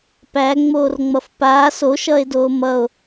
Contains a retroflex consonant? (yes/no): no